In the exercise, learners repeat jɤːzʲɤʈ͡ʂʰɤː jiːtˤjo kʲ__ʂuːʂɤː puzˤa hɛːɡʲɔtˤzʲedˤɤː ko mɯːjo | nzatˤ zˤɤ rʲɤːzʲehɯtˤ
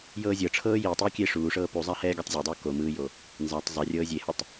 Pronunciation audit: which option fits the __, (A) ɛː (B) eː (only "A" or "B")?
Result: B